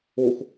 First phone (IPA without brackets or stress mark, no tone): o